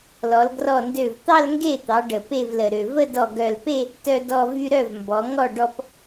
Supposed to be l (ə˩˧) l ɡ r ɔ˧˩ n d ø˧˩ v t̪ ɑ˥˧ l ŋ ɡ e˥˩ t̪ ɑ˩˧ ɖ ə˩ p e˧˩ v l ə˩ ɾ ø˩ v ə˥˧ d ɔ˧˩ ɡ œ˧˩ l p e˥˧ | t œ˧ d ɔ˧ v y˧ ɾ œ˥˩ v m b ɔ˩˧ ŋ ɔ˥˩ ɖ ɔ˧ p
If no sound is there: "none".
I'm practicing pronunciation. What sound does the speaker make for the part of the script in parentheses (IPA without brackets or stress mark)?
ɔ˩˧